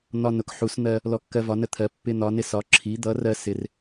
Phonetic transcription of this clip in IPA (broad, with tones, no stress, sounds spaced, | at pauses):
n̪ ɒ˧ n ʊ˩˧ k ħ u˩˧ s n̪ ɜ˧ | l ɔ˧ kː ɜ˧ v ɒ˩˧ n ə˧ t̪ʰ ɜ˩˧ pː ɪ˧ n̪ ɒ˩˧ n ɪ˧ s ɒ˩˧ ǁʰ i˩˧ d̪ ʌ˩˧ r ɜ˧ s ɪ˩˧ r